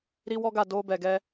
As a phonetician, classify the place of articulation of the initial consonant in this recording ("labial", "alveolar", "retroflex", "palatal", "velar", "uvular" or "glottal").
alveolar